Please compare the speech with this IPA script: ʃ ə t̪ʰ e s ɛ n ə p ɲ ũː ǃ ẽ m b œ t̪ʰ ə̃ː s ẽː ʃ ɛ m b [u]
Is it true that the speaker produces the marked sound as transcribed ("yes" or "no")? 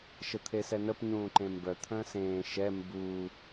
yes